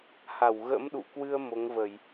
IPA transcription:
h a˧˩ w ɣ ə̰˧˥ m ɗ ṵ˧˨ k w ɨ˧ ə̯ m o˨˦ ŋ v ə˧˩˨ j

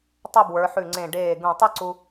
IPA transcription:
tˤ ə˥˧ b w ə˞˩˧ ħ ʉ˧˩ ŋ͡ǀ ẽ˧˩ ɖ eː˧˩ ɡ ũ˧˩ tˤ ɯ˥ ǀ u˧

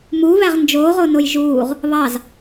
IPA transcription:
m u β æ ʁ n d͡ʒ oː ʁ o n o j ʒ uː ʁ | β ɑ z

